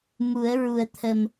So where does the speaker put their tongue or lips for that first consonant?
lips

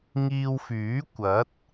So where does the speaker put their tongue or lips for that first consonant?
velum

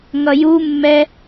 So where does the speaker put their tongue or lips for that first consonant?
velum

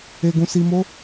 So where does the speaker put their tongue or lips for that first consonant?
velum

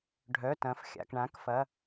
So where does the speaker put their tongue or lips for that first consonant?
retroflex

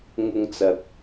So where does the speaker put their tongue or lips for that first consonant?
velum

